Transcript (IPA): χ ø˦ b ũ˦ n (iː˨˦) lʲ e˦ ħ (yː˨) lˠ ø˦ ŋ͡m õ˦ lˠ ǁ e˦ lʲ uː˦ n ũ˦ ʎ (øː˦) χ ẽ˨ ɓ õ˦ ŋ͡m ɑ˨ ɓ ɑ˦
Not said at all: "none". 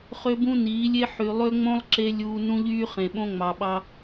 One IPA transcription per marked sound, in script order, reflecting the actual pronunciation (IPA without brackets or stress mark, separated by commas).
iː˨˦, y˨, yː˦